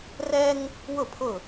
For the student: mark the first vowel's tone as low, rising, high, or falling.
high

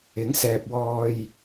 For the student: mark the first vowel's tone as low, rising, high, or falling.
rising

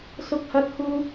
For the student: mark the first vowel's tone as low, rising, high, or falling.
high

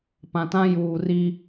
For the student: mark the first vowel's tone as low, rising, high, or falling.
low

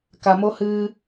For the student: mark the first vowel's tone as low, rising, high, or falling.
low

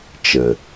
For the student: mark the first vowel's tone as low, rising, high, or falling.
low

